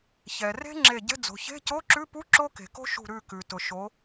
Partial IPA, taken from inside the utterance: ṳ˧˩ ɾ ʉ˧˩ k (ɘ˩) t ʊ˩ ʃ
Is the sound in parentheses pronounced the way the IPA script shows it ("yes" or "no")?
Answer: no